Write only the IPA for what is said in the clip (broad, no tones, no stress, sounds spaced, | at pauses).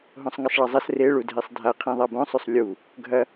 ɦ õ sˤ ŋ ɐ sˤ ɭ ɐ zˤ ɐ s r e ɭ u dʱ e sˤ dʱ a qʰ ĩ ðˤ a b õ sˤ ʉ sˤ lʲ u | ɡʱ ɐ